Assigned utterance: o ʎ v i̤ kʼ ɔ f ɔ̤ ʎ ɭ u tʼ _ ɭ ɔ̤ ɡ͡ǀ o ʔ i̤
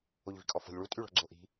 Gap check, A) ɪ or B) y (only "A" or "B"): B